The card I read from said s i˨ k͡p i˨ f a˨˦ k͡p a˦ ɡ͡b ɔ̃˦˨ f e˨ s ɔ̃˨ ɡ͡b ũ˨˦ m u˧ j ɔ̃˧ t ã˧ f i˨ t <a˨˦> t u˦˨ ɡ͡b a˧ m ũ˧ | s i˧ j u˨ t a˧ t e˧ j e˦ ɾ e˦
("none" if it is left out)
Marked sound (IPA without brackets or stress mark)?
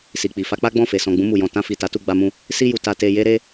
a˨˦